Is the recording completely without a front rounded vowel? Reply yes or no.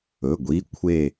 yes